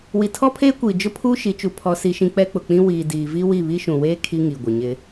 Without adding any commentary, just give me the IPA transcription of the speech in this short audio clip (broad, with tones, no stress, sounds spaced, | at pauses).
w i˨ tʰ ɔ˦ pʰ eː˦ kʷ iː˨ d͡ʒ ʊ˦ pʰ uː˦ ʃ i˨˦ t͡ʃ u˨ pʰ ɔ˦ s i˦ ʃ ĩ˦ k͡p ɛ˦ k͡p ʊ˨ k͡p ĩ˦ w iː˨ d iː˨ v i˦ w i˦˨ β i˦ ʃ ũ˨ w eː˦ kʰ i˦ ŋ i˨ ɡʷ ɪ˨ ɲ ɪ˦